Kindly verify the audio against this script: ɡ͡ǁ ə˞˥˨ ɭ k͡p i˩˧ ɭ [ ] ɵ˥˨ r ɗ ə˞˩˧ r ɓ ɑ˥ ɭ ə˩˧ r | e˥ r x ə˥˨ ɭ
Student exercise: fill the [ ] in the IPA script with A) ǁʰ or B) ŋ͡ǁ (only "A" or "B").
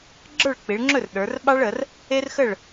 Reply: B